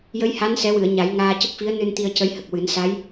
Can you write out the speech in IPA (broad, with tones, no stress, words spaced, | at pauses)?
jə˧˥jha˧˥nsɛ˨˩˦wɨ˨˩˨ə̯ ɲa˨˩˦jŋaː˧ cə˦˥k̚fi˧˥ə̯nɨ˧n t̪i˧ə̯cə˧˥jhə˨˩k̚wɨ˨˩˦n sa˧˥j